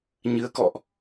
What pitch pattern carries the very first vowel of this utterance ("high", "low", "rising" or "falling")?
rising